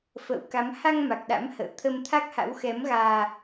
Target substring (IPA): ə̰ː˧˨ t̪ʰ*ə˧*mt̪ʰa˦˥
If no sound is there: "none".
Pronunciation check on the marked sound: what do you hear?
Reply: ə˧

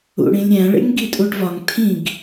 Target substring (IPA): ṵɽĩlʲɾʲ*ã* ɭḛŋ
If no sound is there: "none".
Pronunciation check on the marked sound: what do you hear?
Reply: æ̃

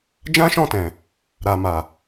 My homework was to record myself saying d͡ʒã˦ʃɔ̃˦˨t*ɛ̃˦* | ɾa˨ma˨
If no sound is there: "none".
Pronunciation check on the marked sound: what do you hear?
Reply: ɛ̃˨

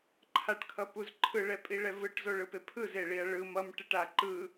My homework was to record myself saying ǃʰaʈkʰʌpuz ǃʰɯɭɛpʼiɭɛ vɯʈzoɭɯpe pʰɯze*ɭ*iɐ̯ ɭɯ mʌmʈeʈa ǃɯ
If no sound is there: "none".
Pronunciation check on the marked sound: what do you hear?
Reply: ɭ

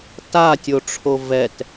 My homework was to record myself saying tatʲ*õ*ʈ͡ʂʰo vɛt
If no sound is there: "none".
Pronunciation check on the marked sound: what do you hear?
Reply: o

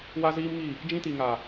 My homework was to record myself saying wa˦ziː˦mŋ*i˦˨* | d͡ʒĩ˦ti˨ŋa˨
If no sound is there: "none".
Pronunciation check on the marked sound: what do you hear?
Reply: i˦˨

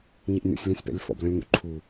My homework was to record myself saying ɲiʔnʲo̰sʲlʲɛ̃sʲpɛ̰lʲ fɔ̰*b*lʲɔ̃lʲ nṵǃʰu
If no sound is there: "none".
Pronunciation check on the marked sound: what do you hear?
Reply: b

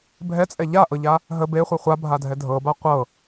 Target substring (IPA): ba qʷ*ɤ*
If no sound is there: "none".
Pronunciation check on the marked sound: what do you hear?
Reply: ɤ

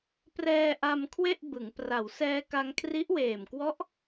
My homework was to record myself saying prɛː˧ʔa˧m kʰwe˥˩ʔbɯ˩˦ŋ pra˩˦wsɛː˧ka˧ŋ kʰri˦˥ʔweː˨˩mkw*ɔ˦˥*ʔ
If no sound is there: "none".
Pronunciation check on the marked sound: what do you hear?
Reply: ɔ˦˥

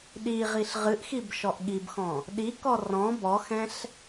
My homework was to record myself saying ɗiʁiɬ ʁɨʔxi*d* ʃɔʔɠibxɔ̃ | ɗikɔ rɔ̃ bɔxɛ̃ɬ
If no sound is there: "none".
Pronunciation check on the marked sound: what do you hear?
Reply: b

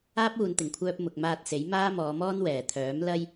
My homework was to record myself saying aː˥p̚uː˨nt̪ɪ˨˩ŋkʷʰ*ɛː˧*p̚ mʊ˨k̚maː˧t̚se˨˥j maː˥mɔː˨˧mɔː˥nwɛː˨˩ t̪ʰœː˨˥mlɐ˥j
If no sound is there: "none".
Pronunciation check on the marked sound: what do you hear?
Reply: œː˧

